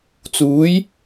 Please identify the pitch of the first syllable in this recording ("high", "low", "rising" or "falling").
rising